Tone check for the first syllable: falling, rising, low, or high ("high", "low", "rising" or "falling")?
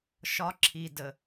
high